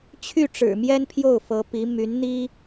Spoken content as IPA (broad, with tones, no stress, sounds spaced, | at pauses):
t͡ɕʰ y˥˩ ʈ͡ʂ ɻ̩˨˩ m j ɛ˥ n pʰ j o˥˩ ʊ̯ f ɤ˧˥ p i˧˥ m y˧˥ n n̪ i˥